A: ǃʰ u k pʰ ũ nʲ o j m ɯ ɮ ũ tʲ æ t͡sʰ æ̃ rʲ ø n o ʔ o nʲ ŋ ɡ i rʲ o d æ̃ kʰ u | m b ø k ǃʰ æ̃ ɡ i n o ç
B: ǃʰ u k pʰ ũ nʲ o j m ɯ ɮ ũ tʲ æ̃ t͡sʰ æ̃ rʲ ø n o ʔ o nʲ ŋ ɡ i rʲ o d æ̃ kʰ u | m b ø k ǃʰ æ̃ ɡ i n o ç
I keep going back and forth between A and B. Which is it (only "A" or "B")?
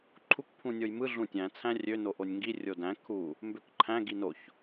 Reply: B